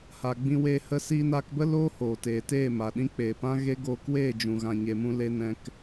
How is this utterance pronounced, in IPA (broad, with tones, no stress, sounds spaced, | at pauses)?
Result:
h a˨ ɡ͡b ĩ˧ w eː˧ h ə˧ s iː˧ n aː˧ k b ə˦ l oː˦ h oː˨ t eː˨ t eː˦˨ m a˨ ɗ ĩ˦ k͡p eː˨ p ã˦ ɣ e˦ ɡ oː˧ k w eː˦˨ d͡ʒ ũ˨ ɣ ã˨ ɲ e˨ m ũ˧ l e˧ n ɛ̃˧ k